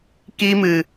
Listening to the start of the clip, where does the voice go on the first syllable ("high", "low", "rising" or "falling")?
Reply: high